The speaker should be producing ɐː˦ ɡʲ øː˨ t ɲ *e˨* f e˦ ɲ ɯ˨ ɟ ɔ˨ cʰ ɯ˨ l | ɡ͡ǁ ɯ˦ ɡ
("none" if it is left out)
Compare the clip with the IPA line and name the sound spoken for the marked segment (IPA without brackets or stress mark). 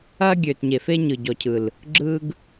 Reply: e˨